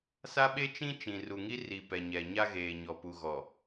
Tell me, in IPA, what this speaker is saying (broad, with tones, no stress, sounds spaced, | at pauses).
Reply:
s a˦ ɓ e˦ t͡ʃ ĩ˦ t͡ʃ ĩ˨ r u˨ ŋ i˦ r i˨ p ɛ˨ ɲ ɛ˨ ɲ a˦ ɣ eː˨ ɲ ɔ˨ p u˨ ɣ ɔ˨